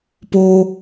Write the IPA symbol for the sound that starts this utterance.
p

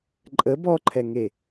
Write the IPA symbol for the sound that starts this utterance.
ǃʼ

